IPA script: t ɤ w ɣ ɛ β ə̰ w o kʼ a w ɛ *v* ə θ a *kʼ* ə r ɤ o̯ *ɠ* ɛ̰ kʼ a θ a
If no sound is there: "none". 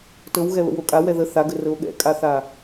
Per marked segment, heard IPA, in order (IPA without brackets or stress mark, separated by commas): ð, ɡ, ɠ